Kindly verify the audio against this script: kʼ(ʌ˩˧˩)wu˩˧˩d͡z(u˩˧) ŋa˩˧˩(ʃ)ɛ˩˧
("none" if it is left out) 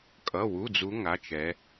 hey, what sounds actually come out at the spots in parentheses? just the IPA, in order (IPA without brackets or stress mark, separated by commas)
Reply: ʌ˩˧˩, u˩˧, t͡ʃ